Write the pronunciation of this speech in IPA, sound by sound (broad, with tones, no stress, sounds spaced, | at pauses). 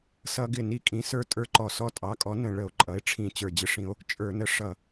s ʌ˦ ɡ ɪ˥˩ n i˦ kʼ ĩ˩˥ s ə˞˦ tʼ ə˞˦ ǃ ɔ˧˩˧ s ɔ˦ tʼ ɑ˩˥ kʼ ɔ˩˥ n ə̃˧˩˧ ɭ ə˧˩˧ o̯ ǃʼ ʌ˩˥ e̯ ʈ͡ʂʰ ĩ˧˩˧ t͡ɕ ə˞˨˩ d͡ʑ ɪ˦ ʂ ĩ˦ o̯ | t͡ʃʼ ə˞˧˩˧ n ə˩˥ ʂ ʌ˨˩